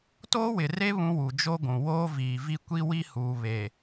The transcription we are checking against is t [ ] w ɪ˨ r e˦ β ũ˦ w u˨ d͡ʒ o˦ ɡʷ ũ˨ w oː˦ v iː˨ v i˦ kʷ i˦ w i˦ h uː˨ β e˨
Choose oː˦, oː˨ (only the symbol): oː˦